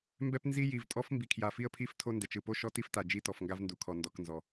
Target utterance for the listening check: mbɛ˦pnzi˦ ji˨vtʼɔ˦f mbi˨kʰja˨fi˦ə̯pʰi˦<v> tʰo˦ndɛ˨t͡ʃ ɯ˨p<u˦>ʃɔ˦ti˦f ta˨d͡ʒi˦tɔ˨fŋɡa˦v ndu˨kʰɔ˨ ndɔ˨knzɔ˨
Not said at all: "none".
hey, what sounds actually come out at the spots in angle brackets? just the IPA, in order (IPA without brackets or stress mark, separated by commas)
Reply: f, o˦